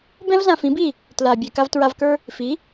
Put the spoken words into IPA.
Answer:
bɛ̃˦vzã˧fĩ˨˦bi˦˨ | tla˨ bʲɛ˨ka˧v tɹa˧vkə˞˦ | fi˨˦

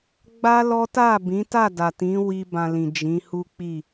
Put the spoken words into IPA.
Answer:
ɡ͡ba˦lɔ˦ ta˦˨bĩ˨˦ta˦˨da˨ tĩ˨˦wi˧ bã˧lĩ˨ d͡ʒĩ˨˦hu˦k͡pi˦˨

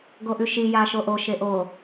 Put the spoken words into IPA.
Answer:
ɡoʔʉʃi jaʃoʔo ʃeʔo

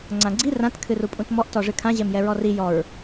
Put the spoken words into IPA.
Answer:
ŋ͡ǀãɡ͡ǀi rãt kʰɨrupʼũtmɔʔ tɔʐɨkʰã ʑɛmjɛɹɔri jɔɹ

